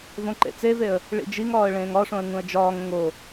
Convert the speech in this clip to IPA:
v õ ǃ ḛ t͡s e v e ə̯ | ɭ ḭ d͡ʒ i ŋ ɒː ə̯ ɭ ẽː ŋ ɒ ʂ õ ə̯ ŋ ũ ə̯ d͡ʒ ɒː ŋ õ ŋ o

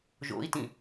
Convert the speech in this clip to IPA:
ʒ o̰ i̯ t ĩ

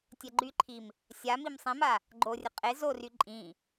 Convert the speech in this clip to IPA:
tʲ ɛ ɡ͡ǃ y ǃʰ i m | sʲ a m i m sˤ ĩ m a | ɡ͡ǃ o rʲ ə qʼ e z o r y ǃʼ ĩ

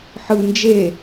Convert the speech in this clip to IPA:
ħ ɯ n d͡ʒ e

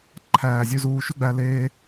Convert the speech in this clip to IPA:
ǃʰ æː˨ zʲ ʉ˧ z uː˧ ʃ ʉ˦ ɡ͡b æ˧ l eː˧

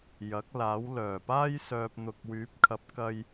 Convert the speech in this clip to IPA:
j ɐ˨˥ k̚ l aː˨˥ w l œː˨˩ p aː˥ j s œː˨ p̚ n̪ ʊ˨ k̚ w yː˨˥ p̚ kʰ ɐ˨˥ p̚ k ɐ˧ j

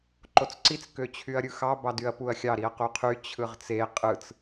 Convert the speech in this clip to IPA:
ǃ o t͡s ǀ i t͡s k ø t͡ɕʰ y ɐ̯ ɾʲ ɯ x ɑ b ɑ d y ɐ̯ p u ɐ̯ xʲ ɑ ɾ i ɐ̯ q u qʰ y t͡ɕʰ ɯ ʁ t͡s e qʼ ɯ t͡s

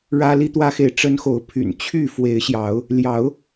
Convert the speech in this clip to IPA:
ɻ ä˦ l i˦ t̪ w ä˦ x e˨ ɪ̯ ʈ͡ʂ ə˦ n x o˨˦ ʊ̯ pʰ y̰˨˩ n t͡ɕʰ y˥˨ f w e˨˦ ɪ̯ ɕ j ɑ˨˦ ʊ̯ | l j ɑ˨˦ ʊ̯

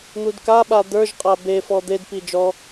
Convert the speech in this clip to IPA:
n̪ u d k a ɓ a d̪ ə˞ ʒ qʼ a b e f ɔ d̪ e d p i d͡ʒ ɔ

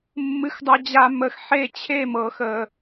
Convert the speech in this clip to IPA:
mː ɨ˥ x dˤ ʌ˥ d͡ʑ a˥ m ə˧ x ħ e˥˧ t͡ɕʰ e˥˧ m ɤ˧ x ə˧

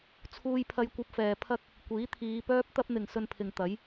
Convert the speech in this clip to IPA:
t͡sʰ uː˧ j pʰ ɐ˧ j kʷ ɐ˧ p̚ f ɛː˨ pʰ ɐ˥ k̚ | kʷ iː˨˥ t̪ʰ iː˨˧ p œː˥ p̚ t̪ ɐ˥ p̚ n̪ ɪ˨ ŋ s ɵ˧ n pʰ ɪ˨ ŋ t̪ ɐ˨˥ j

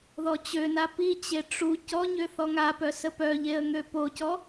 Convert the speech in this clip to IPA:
ð ɔ t͡ɕ ø n a p i t͡ɕ e ʈ͡ʂ u c ɔ ɲ ø θ ɔ ŋ a p œ s ə p œ ʎ e ə̯ ŋ ø p o c ɔ

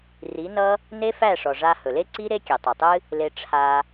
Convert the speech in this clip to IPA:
r i˨˦ n ʌ˦ | n e˦ f æ˦˨ ʂ ɔ˨ ʐ a˧ h ɵ˨ l e˦ ǀ i˦ ɾ e˦ kʲ e˨ tˤ e˨ tˤ ɨ˦ | l e˧ ʈ͡ʂʰ a˧

